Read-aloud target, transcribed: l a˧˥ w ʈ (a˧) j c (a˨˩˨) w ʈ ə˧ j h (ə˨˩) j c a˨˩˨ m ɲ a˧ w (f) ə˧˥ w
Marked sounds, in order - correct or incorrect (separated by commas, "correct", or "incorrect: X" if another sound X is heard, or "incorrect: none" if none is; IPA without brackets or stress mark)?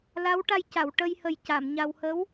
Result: correct, correct, correct, incorrect: h